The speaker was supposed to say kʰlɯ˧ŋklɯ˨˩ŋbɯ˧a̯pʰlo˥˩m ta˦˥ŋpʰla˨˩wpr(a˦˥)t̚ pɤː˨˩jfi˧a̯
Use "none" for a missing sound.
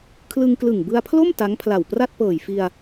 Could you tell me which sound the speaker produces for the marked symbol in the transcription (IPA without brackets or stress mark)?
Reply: a˥˩